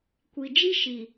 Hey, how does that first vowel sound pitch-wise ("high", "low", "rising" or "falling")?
low